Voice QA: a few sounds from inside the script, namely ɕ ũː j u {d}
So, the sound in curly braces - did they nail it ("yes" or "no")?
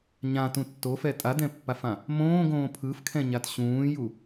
no